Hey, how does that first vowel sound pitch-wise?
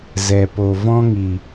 low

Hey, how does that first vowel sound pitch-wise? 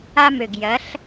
high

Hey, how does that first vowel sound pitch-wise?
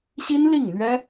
high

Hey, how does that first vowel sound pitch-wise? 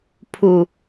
low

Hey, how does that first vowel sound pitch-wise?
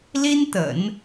high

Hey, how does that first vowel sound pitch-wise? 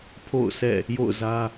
falling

